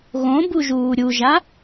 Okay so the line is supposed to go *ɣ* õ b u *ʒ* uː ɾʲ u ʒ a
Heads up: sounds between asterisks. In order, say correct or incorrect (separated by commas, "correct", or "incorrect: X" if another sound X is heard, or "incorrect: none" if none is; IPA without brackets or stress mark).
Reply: correct, correct